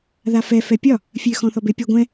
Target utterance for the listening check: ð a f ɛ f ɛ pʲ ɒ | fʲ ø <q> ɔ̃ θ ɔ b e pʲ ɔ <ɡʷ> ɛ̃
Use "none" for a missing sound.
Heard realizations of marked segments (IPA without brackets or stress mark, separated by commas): x, ɡʷ